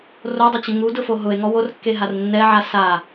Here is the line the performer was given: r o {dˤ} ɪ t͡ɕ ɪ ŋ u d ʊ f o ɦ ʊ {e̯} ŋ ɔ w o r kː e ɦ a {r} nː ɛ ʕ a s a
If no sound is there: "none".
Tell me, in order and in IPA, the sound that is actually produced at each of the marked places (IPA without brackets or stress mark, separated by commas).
dˤ, e̯, r